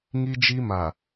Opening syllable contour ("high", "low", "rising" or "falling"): high